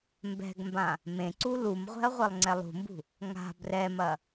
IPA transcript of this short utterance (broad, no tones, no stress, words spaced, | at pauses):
mbɛ̤ɡmbã | mẽǀu lumʁʷɛ̤ɐ̯ ʁʷelˠŋ͡ǀɛlˠṳmbṳ | ŋa̤ brɛmɐ